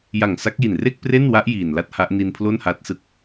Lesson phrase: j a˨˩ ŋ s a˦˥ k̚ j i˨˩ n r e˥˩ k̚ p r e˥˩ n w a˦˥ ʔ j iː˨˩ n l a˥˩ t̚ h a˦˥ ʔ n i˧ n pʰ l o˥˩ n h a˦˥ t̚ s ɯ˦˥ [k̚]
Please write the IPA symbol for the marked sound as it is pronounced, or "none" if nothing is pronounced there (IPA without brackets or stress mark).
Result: k̚